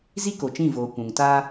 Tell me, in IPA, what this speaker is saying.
zi˦ko˨t͡ʃĩ˦˨voː˨ kʷũ˨ŋtaː˦

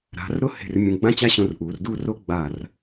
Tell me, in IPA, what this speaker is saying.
ɾa̤˩˧rɾʊ˥ he̤˧˩r mʲũ˧˩ ɡ͡bã˥t͡ɕa˥ɕõ˧rʔuː˩˧r du˥˧ro˥ ɡ͡ba˧˩r

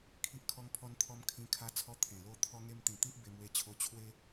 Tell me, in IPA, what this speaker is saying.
kʰi˦ʔ kʰɔ˧ŋpʰɔ˧nt̪ʰɔ˧m kʰĩ˧kʰa˧t͡sʰɔ˧ t̪ʰẽ˨˩lo˦t̪ʰɔ˦ŋe˦m t̪ĩ˨˩t̪i˦ʔ be˧mwe˧t͡ɕʰo˧ t͡ɕʰwe˦

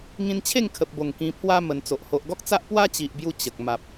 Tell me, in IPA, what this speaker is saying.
ŋĩ˧nt͡ɕʰe˥˧ŋkʰə˨p̚bo˨˩ŋ kĩ˧pʰwa˦ mə˧nt͡so˨ʔ ho˨ʔɡɔ˦k̚t͡sa˦ʔ pwa˦t͡ɕi˨ʔbju˧ t͡ɕə˨k̚ ma˨p̚

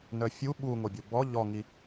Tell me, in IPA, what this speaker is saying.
nœfʲu ɓu ŋobʲobɔ ʎɔŋi

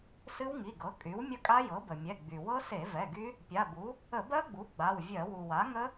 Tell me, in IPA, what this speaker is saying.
sɨ˦˥wŋi˩˧˩ɡɤ˩˥ kʼy˩˥wmʲə˦˥kʼa˦˥ jɤ˩˥bə˩mʲɛ˩˧˩ ɡ͡by˩ wɤ˦˥se˧˩˧ vɛ˩˧˩ɡy˦˥ | pʲa˩˧˩bu˩˥ | ə˧˩˧bɜ˦˥ɡ͡bu˩˥ ɡ͡ba˩˧˩wvʲɜ˧˩˧ wu˩wa˩˥ŋə˦˥

